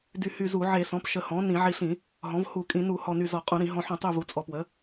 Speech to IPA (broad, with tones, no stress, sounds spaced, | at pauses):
d y˧˩ h y˧˩ z u˧˩˧ ʕ e˧˩˧ s ɔ̃˩˥ p ʃ ə˧˩ h ɔ̃˩˥ n ĩ˧˩˧ ʕ i˧˩ ɬ ĩ˧˩˧ | ɦ ɔ̃˩˥ v h u˧˩˧ kʼ ĩ˧˩˧ n u˧˩˧ h ɔ˧˩ n y˧˩ z ɔ˧˩˧ qʼ ũ˧˩˧ ɾ ĩ˧˩˧ ɦ ɔ̃˧˩ ħ ũ˧˩˧ tˤ y˧˩ v u˩˥ t͡sʼ ɔ˩˥ p w ə˩˥